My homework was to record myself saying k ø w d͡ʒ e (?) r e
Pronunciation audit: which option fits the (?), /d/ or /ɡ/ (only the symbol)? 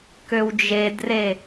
d